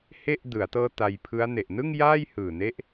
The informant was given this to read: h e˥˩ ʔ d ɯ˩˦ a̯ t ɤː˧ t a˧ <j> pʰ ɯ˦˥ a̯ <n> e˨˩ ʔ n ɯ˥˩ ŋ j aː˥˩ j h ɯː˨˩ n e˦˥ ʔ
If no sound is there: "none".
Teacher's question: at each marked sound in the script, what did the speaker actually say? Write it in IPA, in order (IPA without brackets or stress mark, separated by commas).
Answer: j, n